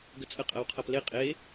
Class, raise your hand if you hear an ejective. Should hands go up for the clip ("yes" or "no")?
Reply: yes